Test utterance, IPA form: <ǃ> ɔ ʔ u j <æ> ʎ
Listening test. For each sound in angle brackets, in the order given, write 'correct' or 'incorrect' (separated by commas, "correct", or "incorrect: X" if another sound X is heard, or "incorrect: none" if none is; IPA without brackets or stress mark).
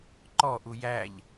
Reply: correct, correct